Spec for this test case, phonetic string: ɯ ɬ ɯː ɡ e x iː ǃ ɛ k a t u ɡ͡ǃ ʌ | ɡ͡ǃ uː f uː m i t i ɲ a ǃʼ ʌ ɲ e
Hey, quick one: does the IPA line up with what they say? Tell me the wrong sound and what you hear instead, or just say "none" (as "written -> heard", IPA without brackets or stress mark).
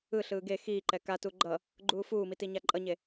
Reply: none